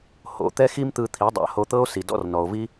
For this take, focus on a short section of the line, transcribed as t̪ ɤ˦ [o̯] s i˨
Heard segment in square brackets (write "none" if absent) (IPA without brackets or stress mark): o̯